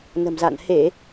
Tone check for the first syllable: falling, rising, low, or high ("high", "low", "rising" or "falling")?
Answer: low